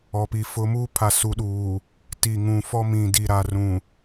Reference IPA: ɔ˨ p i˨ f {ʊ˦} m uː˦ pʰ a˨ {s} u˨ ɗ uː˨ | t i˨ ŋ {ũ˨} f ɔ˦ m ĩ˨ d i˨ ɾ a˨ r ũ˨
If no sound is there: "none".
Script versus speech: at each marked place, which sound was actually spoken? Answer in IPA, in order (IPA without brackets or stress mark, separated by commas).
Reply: ʊ˦, s, ũ˨